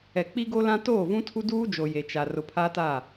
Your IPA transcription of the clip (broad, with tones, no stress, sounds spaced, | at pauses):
ɛ˨ k͡p i˦ ɡ o˦ l ã˦ t oː˦˨ v ũ˦ tʰ u˦ d uː˦ d͡ʒ o˨ j e˨ t͡ʃ a˨ r ʊ˨ pʰ a˦ t a˦˨